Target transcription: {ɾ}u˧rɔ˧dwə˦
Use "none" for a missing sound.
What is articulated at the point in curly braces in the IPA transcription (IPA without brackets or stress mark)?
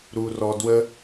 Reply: ɾ